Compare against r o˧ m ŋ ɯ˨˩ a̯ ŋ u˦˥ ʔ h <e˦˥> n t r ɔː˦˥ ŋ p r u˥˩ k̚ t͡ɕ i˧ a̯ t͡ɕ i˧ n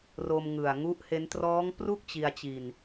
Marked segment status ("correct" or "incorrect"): correct